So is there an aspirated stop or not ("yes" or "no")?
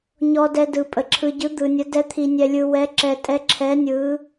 yes